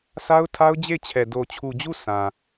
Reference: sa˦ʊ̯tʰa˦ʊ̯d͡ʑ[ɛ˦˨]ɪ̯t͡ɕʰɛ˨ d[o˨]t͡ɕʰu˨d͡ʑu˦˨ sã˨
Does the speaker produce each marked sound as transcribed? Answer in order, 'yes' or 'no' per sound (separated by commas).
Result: no, yes